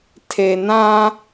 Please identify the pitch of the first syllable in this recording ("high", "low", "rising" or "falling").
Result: low